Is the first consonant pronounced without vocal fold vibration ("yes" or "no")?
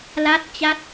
no